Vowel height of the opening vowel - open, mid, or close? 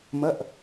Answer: open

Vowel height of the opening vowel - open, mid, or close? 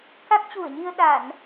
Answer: open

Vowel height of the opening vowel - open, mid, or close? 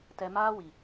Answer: mid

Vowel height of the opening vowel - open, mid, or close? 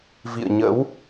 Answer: close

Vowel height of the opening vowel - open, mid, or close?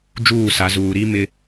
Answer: close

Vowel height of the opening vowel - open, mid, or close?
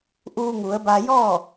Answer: close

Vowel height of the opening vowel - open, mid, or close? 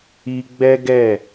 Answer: close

